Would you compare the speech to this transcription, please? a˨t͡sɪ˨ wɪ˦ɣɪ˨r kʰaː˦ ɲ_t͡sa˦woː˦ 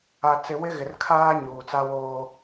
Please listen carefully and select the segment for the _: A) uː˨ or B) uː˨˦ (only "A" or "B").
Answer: A